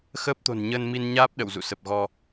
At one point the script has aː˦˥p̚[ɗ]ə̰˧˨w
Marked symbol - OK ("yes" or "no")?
yes